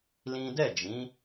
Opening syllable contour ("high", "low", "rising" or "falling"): high